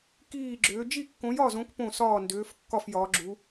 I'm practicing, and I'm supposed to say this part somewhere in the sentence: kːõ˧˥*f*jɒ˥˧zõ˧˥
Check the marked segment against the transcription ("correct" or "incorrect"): incorrect